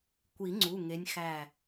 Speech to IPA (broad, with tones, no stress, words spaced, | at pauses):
kʷi˨˩˦ŋ͡ǀu˩˧˩ ŋe˨˦nʲ xæ˧˩